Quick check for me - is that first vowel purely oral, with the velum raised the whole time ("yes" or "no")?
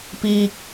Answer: yes